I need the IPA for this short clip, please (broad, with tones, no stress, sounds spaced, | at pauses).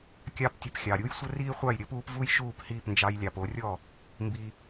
kʲ ɑ˥ p tʲ ə˧ p xʲ ɑ˩ ɾʲ u˥ j sʷ ə˥ r iː˥ χʷ ɑ˥˩ j ɾʲ əː˥ p uː˩˥ p v u˥ j ʃ uː˥˩ p h iː˥˩ p n d͡ʒ ɑ˧ j lʲ ɑ˩ p o˩˥ rʲ ɔ˥˩ | m b i˧